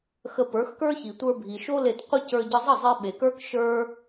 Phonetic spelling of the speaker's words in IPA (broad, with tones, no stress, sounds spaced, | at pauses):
x ə˧ p ə˞˨˦ x k ə˞˦ ç i˨ tʷ ə˞˧ bʱ i˨ ʃ o˦ l e˧ t qʷ ə˦ c ə˞˧ ɟ ə˧ zˤ ə˦˨ zˤ e˧ ɓ e˨ k ə˞˦ k ʃ ə˞˦